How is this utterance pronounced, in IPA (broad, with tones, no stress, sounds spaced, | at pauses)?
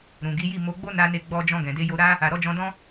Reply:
ɾ ũ˨ ɡ i˨˦ j i˦˨ m o˧ ɡ͡b o˦ n a˧ n e˧ ɡ͡b ɔ˧ d͡ʒ ɔ̃˧ ɡ ɛ̃˨ d e˧ j o˧ ɾ a˦ | a˨ ɾ ɔ˧ d͡ʒ ɔ̃˧ d ɔ̃˦